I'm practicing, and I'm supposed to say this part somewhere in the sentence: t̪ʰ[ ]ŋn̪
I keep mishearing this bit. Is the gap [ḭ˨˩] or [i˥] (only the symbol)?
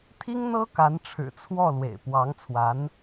i˥